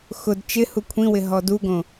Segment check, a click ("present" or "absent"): absent